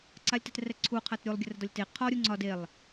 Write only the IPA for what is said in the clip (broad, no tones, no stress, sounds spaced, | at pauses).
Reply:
ǀ a lʲ t ɛ t r ɛ ǀʰ u qʰ a t ɾʲ u lˠ ɡʲ ə r ə d ɒ lʲ t e qʰ ɔ ɾʲ u ŋ͡ǀ ɒ d e lˠ